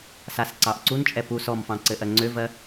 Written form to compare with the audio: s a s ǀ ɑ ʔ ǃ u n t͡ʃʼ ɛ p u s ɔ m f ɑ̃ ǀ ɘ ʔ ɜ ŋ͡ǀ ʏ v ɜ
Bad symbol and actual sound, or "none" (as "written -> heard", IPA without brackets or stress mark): ǃ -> ǀ